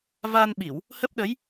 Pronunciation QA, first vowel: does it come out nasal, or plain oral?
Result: oral